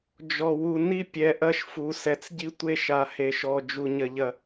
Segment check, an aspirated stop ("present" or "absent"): absent